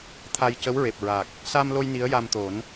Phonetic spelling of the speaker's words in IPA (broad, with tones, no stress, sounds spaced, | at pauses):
t̪ʰ a˧ j c ə˧˥ w ɹ e˨˩ p̚ ɹ a˨˩ k̚ | s a˧ m l o˧ j n i˧˥ ə̯ j a˧ m t̪ o˨˩˦ n